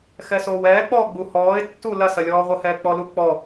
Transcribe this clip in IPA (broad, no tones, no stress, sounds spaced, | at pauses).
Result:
x ɛ s oː w ɛː k͡p ɔː ɡ͡b u h ɔː ɪ̯ tː u l ɐ s ɐ lʲ ɔː ʁʷ ə h ɛː k͡p ɔ l u k͡p ɔ